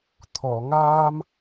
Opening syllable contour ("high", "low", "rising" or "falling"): low